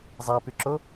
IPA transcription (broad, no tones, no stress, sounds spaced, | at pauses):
zˤ æ p y ǁ o